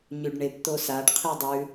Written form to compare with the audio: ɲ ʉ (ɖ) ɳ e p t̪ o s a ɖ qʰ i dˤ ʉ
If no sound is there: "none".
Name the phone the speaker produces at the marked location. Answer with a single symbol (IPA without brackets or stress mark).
ɖ